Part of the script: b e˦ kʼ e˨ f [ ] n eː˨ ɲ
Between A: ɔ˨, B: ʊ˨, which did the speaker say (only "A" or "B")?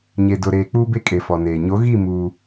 A